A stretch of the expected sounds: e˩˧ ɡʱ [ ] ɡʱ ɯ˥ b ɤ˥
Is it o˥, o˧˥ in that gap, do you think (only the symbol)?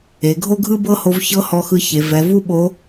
o˥